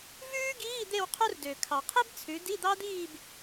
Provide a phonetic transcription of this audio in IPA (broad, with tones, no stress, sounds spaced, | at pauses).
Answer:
v ʉː˥ ɡ iː˧˥˧ d̪ e˥˧ w qʰ u˥ r d ø˩ kʰ ɑ˩ qʰ i˥ b t͡sʰ ʉ˩˧ d i˧˥˧ d̪ ɑ˥ d̪ iː˥˧ b